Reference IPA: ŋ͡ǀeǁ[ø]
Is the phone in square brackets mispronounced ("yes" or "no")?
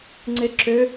no